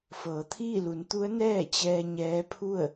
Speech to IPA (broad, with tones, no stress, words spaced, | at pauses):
fɤː˩˧t̪ʰiː˥˨lu˩˧nt̪u˧˥ə̯ nɛː˥˨t͡ɕɛː˧ ɲɛː˧˥pʰu˥˨ə̯